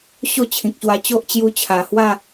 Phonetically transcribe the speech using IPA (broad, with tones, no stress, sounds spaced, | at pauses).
ɕ o˥˧ t͡ɕʰ ĩ˨ k̚ ɕ w a˧ t͡ɕ o˦ ʔ t͡ɕ j u˧ t͡ɕʰ a˨˩ h w a˥˧